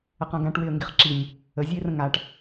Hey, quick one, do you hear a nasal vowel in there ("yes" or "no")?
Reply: yes